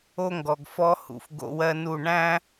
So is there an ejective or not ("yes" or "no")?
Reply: no